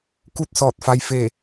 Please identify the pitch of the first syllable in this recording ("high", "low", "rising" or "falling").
falling